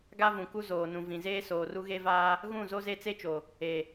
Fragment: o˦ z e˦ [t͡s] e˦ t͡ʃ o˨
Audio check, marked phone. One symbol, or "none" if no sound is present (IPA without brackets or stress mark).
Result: t͡s